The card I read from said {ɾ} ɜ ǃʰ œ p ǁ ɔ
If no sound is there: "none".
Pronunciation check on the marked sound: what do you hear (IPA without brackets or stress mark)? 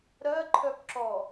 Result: ɾ